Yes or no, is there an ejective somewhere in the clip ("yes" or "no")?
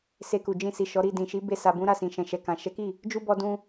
no